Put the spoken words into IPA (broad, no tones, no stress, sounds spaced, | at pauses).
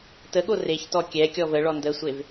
t ə ɠ o r e ç t ɔ kʲ ɛ kʲ ɔ v ə ɭ ɔ n d ə sʷ e v